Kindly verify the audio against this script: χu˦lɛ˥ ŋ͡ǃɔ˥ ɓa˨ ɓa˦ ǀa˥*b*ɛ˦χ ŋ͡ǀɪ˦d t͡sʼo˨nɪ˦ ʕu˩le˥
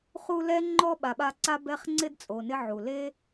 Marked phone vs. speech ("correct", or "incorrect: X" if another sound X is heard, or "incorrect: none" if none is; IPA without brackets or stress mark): correct